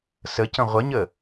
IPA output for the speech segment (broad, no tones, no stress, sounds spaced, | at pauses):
s ə c ə̃ ʁʷ ə ɲ ə